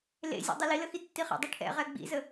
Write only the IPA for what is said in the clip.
l ḛ zʲ ɛ̰ dˤ i l i l ə x i tː i χ ɛ̰ dˤ i ʈʰ ɛ̰ ʁ ɛ ɡ͡b ḭ z ə

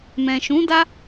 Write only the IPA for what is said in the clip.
m ɛ̃˨ ʃ ũ˨˦ d a˦

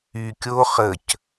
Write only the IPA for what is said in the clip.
y kʲ o χ ə c

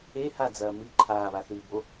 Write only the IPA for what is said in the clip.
e h a d͡z ɐː m ɨ ǃʰ aː β a θ ɨː b o

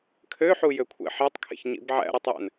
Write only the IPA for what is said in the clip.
kʰ ø ħ u j ø kʷʰ ḛ ħ e tˤ kʰ ḛ ç ɲ ḭ b ʕ æ̰ ɾ ɯ tˤ j æ̰ n

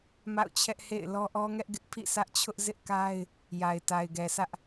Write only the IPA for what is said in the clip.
m a̰˦˨ ʊ̯ t͡ɕʰ ɛ˦ ʔ h ḛ˦˨ ɪ̯ l ɔ˦ ʔ ɔ˦ ŋ ɛ˦ ʔ ɡ ɪ˦ ʔ pʰ ḭ˦˨ s ä˦ ʔ t͡ɕʰ ʊ˦ ʔ z ɪ˦ ʔ k a˦ ɪ̯ | j a˨ ɪ̯ t a˨ ɪ̯ ɡ ɛ˨ s ä˦ ʔ

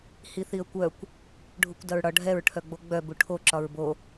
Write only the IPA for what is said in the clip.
h i θ i ə̯ kʷ œ kʷ | ɖʱ u kʷ d ɐ ɹ ɽ ɒ ɖʱ ɛ ɹ ʈʰ œ ɡ͡b o ɡ͡b œ b u ʈʰ o ǁ ɒ ɹ b o

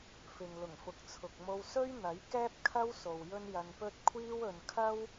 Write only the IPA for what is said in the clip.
f ɪ˨ ŋ l ʊ˨˩ ŋ f ʊ˨ k̚ t͡sʰ ʊ˨ k̚ m o˧ w s ɵ˥ ɥ n̪ ɐ˨˥ j k ɛː˥ p̚ kʰ ɐ˥ w s o˨ w j ɵ˥ n j ɐ˧ n p ɵ˥ t̚ kʷʰ iː˥ w ɵ˧ n kʰ ɐ˥ w

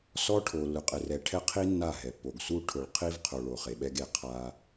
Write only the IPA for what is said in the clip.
s ɔ˦ ʈʰ o˨ lː ʊ˨ qʼ ɪ˨ r ɛ˨ ʈʰ ɛ˦ qʰ i˦ nː a˦˨ ɦ ɛ˨ pː o˨ ɡ s u˦ ʈʰ ʊ˨ ɭ qʰ i˦ v qʰ o˨ ɭ o˨ χ e˨ ɓ ɛ˦ ɡ e˨ qʰ a˦

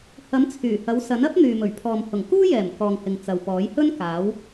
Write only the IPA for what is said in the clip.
h ɐ˨˥ m t͡sʰ yː˨˩ h ɐ˨˧ w s ɐ˨˥ n ɐ˥ p̚ n̪ yː˨ m ɵ˨˩ ɥ pʰ ɔː˨ m h ʊ˨˩ ŋ k uː˥ j ɛː˨˩ m k ɔː˨ ŋ h ɪ˨ ŋ t͡s ɐ˨ w p ɔː˨˥ j h ɵ˥ n k aː˨˥ w

